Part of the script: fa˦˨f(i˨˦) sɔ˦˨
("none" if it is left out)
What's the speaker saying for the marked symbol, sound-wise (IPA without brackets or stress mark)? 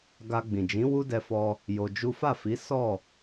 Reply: i˨˦